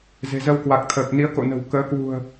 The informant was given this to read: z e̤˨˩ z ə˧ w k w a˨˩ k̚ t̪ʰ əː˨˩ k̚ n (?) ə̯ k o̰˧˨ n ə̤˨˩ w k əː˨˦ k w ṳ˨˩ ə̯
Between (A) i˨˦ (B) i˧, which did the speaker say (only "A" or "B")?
A